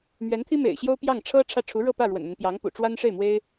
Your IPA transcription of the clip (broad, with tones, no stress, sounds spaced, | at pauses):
m ɥ ɛ˧˥ n t̪ʰ i˥ m ḛ˨˩ ɪ̯ ɕ j o˥ ʊ̯ p j ɑ˥˩ ŋ ʈ͡ʂʰ ɤ˥ ʈ͡ʂʰ ä˥˩ ʈ͡ʂʰ u˧˥ ɻ ɤ˥˧ p ä˥˩ ɻ w ə̰˨˩ n m ə˦ n p j ɑ˧˥ ŋ p ṵ˨˩ ʈ͡ʂ w a˥ n ʂ e˥˩ ɪ̯ m w e˥ ɪ̯